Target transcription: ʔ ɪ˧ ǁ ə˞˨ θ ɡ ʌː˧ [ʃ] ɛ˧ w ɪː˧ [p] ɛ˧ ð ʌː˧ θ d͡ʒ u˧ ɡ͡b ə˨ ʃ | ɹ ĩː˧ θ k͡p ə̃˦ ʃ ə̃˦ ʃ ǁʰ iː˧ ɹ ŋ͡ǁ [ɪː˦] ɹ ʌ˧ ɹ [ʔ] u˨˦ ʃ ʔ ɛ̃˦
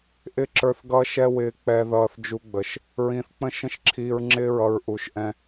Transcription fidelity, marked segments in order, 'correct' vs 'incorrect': correct, incorrect: k͡p, incorrect: ɪː˦˨, correct

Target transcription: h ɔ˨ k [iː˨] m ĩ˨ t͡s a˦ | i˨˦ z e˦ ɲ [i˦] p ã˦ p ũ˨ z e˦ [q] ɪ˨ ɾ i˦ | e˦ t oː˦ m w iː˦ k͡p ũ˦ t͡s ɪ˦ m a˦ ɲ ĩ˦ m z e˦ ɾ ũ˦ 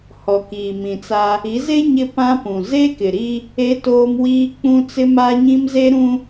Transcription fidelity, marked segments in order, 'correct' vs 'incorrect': correct, incorrect: ɪ˦, incorrect: k

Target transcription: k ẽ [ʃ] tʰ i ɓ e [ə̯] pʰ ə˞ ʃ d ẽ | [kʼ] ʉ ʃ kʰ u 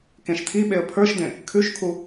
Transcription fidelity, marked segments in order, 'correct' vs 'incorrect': correct, correct, incorrect: kʰ

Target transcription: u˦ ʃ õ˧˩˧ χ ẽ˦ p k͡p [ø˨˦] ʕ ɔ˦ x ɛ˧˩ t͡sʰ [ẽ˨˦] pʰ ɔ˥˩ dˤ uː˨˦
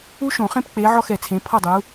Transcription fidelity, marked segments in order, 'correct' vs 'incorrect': incorrect: e˨˦, correct

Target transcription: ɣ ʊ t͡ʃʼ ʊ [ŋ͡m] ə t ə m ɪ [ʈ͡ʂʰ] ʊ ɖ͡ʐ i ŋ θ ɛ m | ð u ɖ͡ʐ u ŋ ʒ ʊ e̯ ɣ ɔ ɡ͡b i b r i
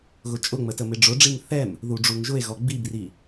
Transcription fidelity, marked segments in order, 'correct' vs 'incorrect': correct, incorrect: ɖ͡ʐ

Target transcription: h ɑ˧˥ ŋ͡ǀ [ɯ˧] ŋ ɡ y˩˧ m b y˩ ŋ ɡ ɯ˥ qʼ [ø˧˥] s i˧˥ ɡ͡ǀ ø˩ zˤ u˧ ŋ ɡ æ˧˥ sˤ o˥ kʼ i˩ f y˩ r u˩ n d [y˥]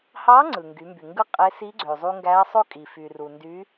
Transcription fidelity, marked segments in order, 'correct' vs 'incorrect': incorrect: ɯ˩, incorrect: e˧˥, incorrect: y˧˥

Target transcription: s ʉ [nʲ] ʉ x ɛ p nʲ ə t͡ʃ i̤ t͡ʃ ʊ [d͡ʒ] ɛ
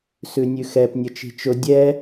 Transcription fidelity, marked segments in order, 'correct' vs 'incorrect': correct, incorrect: dʲ

